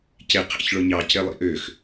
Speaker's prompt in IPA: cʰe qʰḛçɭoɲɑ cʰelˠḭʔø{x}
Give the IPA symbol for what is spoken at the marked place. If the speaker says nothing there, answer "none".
x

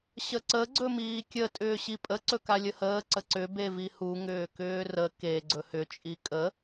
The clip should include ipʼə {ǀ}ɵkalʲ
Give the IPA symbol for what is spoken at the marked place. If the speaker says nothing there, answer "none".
ǀ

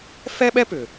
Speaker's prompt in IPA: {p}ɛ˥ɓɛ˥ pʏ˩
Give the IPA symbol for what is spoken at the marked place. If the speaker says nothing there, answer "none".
f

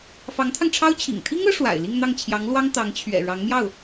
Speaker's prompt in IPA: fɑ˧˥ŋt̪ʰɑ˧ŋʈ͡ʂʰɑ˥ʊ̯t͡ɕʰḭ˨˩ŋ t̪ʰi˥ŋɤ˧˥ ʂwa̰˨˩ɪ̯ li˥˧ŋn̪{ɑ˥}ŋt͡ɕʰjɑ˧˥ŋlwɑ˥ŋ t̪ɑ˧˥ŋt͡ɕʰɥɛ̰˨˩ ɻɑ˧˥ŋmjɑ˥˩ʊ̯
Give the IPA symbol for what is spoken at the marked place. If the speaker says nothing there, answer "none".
ɑ˥˩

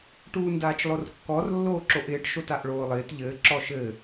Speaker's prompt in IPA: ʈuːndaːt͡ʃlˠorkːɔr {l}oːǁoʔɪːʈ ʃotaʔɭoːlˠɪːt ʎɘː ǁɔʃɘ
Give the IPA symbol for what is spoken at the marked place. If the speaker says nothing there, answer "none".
lː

